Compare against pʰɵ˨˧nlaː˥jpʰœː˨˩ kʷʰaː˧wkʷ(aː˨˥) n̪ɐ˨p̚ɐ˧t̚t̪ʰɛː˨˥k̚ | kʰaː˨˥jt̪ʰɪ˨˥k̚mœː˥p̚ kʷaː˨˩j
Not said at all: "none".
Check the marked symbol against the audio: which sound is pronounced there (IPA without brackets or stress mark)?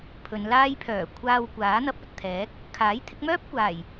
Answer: aː˨˥